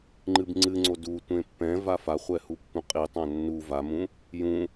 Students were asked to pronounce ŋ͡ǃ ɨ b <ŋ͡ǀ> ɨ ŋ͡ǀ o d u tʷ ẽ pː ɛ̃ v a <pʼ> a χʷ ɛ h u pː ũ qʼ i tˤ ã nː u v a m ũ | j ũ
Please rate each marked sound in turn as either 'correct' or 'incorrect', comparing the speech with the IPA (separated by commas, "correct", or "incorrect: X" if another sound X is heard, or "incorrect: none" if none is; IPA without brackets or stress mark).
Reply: correct, incorrect: f